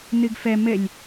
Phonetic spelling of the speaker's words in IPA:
n̪ɯɡfɜ məlʲ

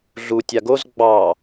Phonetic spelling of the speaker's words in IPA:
ɮu tʲaɡoz ɡ͡bɑ

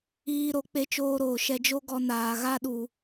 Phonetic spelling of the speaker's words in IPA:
iː˦ ɾo˨˦k͡pe˧t͡ʃoː˧ɾoː˨ ʃɛ˧d͡ʒo˦ ɡɔ˧naː˨ ɣa˦ɗu˨

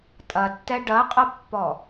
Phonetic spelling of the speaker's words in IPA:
tʼɐtːɛ ɖɐqʼɐpːɔ

